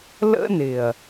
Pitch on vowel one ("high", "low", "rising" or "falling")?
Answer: high